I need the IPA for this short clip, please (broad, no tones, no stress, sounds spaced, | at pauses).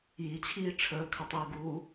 j i t͡ɕʰ iː ʈ͡ʂʰ əː kʰ ə tˤ iː ɡ uː